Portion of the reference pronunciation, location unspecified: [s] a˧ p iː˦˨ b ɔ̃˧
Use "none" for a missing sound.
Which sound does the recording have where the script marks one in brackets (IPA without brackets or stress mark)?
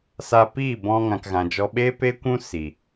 s